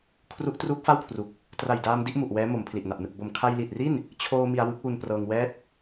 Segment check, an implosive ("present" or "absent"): absent